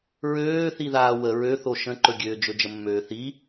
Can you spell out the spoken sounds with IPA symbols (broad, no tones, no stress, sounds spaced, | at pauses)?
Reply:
ɹ øː θ i ð aː w ə ɹ ø θ o ʃ ə̃ ǃ ɵ ɡʲ øː d͡ʒ ɵ d͡ʒ ə mː øː θ i